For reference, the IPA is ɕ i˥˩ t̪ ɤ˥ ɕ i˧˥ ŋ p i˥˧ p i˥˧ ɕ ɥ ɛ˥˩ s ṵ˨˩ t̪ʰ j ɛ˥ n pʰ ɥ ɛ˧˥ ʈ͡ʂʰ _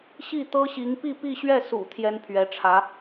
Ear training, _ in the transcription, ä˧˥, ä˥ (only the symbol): ä˧˥